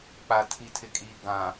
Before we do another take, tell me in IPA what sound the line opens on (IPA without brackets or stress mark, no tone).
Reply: k͡p